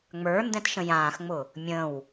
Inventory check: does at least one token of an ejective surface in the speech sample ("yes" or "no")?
no